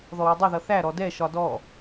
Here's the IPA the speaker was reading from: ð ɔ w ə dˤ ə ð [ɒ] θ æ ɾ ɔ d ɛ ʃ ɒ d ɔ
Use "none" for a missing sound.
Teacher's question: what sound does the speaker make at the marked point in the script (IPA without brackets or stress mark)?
ʌ